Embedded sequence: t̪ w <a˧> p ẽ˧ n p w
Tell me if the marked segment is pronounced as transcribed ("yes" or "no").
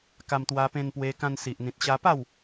yes